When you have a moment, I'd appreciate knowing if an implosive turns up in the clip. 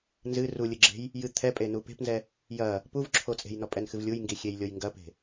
no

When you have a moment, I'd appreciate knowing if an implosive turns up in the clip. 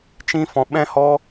yes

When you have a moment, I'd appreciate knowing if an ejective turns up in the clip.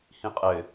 yes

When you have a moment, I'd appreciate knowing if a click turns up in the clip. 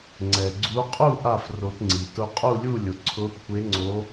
yes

